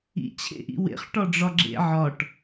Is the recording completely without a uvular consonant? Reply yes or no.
no